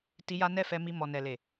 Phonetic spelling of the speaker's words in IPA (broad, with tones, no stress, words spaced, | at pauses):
ti˧ja˦nɛ˦ fɛ˧mi˧mɔ˨ nɛ˨le˨